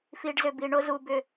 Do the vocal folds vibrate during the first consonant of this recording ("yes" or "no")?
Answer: no